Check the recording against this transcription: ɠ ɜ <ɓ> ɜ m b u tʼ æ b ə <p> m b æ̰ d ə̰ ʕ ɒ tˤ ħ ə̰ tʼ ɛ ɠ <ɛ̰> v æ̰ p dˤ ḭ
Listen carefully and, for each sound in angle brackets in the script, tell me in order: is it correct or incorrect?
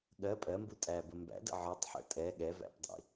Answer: incorrect: pʼ, incorrect: none, incorrect: ɛ

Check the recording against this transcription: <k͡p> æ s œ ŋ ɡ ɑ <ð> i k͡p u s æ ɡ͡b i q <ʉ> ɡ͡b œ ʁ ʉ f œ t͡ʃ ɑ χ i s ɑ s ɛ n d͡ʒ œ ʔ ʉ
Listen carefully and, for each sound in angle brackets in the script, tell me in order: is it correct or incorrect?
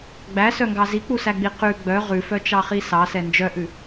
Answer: incorrect: ɡ͡b, incorrect: z, correct

